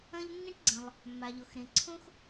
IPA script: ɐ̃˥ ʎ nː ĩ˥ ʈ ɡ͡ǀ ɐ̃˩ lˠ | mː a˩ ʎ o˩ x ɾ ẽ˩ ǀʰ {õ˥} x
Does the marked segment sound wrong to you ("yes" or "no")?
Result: no